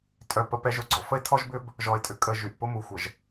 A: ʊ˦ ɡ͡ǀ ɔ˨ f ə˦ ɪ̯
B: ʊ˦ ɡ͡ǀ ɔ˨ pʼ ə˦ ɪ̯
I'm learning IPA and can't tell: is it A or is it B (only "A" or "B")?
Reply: A